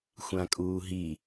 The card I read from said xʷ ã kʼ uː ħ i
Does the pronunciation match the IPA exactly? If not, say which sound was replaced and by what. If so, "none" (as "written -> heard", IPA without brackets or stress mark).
ħ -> ɦ